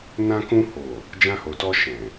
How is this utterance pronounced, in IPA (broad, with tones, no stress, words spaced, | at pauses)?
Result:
nã˧kũ˧ho˨ | d͡ʒã˧ho˨tɔ˧ ʃɛ̃˨